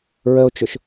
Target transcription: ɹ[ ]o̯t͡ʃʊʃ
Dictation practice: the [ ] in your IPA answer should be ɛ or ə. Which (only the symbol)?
ə